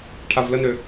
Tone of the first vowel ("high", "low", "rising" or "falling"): low